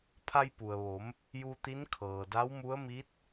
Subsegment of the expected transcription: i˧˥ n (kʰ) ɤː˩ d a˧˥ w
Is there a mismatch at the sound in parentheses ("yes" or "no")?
no